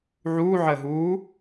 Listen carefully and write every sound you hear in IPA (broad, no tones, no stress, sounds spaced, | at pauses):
ʕ uː ʕ əː ɦ uː